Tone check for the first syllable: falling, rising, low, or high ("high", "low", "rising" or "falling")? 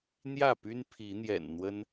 falling